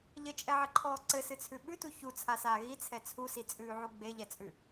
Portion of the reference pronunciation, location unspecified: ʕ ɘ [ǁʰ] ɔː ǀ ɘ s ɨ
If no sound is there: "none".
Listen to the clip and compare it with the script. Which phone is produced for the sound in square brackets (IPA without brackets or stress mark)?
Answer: ǃʰ